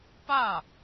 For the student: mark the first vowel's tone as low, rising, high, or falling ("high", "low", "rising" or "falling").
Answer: falling